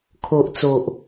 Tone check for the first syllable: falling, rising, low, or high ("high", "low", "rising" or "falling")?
low